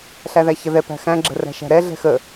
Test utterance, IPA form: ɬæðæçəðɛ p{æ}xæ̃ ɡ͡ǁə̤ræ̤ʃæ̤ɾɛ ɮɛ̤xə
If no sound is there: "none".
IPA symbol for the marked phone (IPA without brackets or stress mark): æ̤